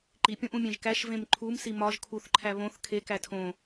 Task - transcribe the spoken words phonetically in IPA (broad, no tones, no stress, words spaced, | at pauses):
ǃipʲõʔũ mʲẽʒkæʃ vẽmǃʰum simɒʒ kʰuθǃʰæ βõθ kʰe kætʰõ